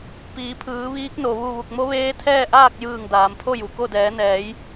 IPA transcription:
p iː˩˧ pʰ ɯː˩˧ ʋ iː˧˥ k̚ n o˩ ʋ u˥˨ ʋ u˧˩ k̚ m o˧˥ ʋ eː˧˥ t̪ʰ ɛː˥˨ ʔ aː˥˨ k̚ j ɯː˧˩ ŋ d aː˩˧ m pʰ o˥˨ j u˩ k o˥˨ d ɛː˩˧ n ɛː˩˧ j

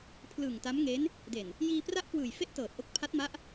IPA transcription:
pʰ l ɯ˨˩ ŋ t a˦˥ m ŋ e˦˥ n | d e˨˩ n | j iː˧ p r a˥˩ ʔ k w ɯː˨˩ j f e˥˩ ʔ t ɤː˨˩ t̚ ʔ o˦˥ k̚ pʰ a˦˥ t̚ m a˦˥ ʔ

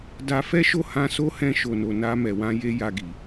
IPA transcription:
d a˧ f ɛ˦ ʃ o˦˨ h ã˧ s o˦ h ɛ̃˧ ʃ o˨ n o˨ n a˧ m ɛ˨ w ã˧ j e˦ j a˧ ɡ i˨

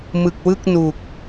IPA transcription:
m ɯ˨˩ k̚ w ɯ˥˩ k̚ n u˨˩ k̚

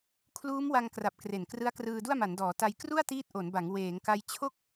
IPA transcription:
kʰ l uː˦˥ m w a˧ ŋ k r a˨˩ p̚ k r e˨˩ n k r ɯ˦˥ a̯ k r ɯː˧ d u˥˩ a̯ m a˩˦ n d ɔː˩˦ t a˧ j k r u˥˩ a̯ t iː˦˥ t̚ ʔ o˩˦ n b a˩˦ ŋ w eː˩˦ ŋ k a˧ j t͡ɕʰ o˥˩ k̚

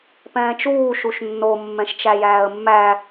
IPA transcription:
p ɛ̃ː t͡ʃ uː ʃ u ʃ nː o mː ɛ̃ ʃ t͡ʃ æ j æː ə̯ mː æ

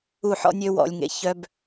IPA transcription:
u˦˨ ħ ɔ̰˦ nʲ ø˦ w ɔ̰˧ lʲ ŋ ḛ˧ ç œ˧ b

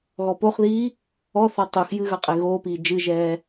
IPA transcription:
ɣ ɔ p o χ ð iː | ɔ θ ɔ tˤ u x j ɨ ɣ ɐ qʼ e ɣ oː p iː d͡ʒ ɨ ʒ ɛː

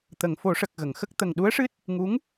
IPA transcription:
t̪ ə˨˩˨ ŋ f o˨˩˦ ʂ ə˨˩ k̚ ɣ ə˨˩˨ ŋ x ə˦˥ k̚ t̪ ə˨˩ ŋ ɗ u˧˥ ə̯ ʂ ɨ˦˥ t̚ | ŋ u˧˥ ŋ

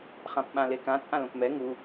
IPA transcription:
χ ã p ɓ ã l e k ã t͡sʼ ã l õ p m ɛ ŋ u

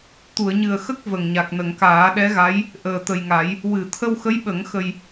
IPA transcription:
t̪ u˨˩˨ ə̯ ɲ ɨ˨˩ ə̯ x ə˦˥ k̚ v ə˨˩ ŋ ɲ a˨˩ k̚ n ə˨˩˨ ŋ k aː˨˩˦ ɗ ɛ˧˥ ɣ a˧˥ j | ʔ əː˨˩ t̪ ə˨˩ j ŋ a˨˩˦ j | w ɨ˨˩˨ t̪ʰ ə˧ w x ə˧˥ j ɓ ə˨˩˦ ŋ x ə˧ j

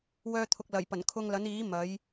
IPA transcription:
w œː˧ t̪ʰ ʊ˨ k̚ l ɐ˨˩ j p ɐ˨˩ n kʰ ʊ˧ ŋ l ɐ˨˥ n iː˨˥ m ɐ˨˥ j

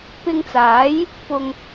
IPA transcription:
p ɪ˧ ŋ t͡s aː˨˥ j | p ʊ˨ ŋ

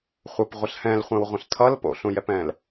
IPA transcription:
χʷ ə p ʁʷ ə ɬ h ɛ̃ l χʷ ɛ̃ w ʁʷ ə̃ ɬ tʰ ʌ l p o̰ ɬ ũ j ɛ p ɛ̃ l

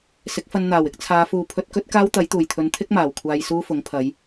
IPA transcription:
s ɪ˨˥ k̚ f ɐ˧ n n̪ aː˨˩ w ɪ˨˥ k̚ t͡sʰ aː˨˧ f uː˨ pʰ ɵ˧ t̚ k ɵ˥ t̚ k aː˥ w t̪ ɐ˨˥ j t̪ uː˨˩ j t̪ʰ ɵ˨˧ n t̪ʰ ɪ˥ k̚ m aː˨˩ w kʷʰ aː˧ j s uː˥ f ʊ˨˥ ŋ pʰ ɐ˨˧ j

